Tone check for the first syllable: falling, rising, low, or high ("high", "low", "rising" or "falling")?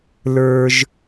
high